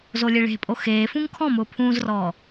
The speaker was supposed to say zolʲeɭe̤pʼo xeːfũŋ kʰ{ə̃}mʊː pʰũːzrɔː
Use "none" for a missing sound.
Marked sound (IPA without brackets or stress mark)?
ɔ̃